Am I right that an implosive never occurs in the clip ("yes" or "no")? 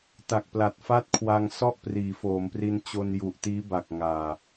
yes